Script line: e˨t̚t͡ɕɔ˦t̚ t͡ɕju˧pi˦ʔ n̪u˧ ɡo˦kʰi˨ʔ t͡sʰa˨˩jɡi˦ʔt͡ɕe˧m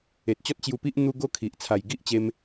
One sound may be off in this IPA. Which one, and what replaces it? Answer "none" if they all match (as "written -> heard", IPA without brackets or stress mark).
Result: none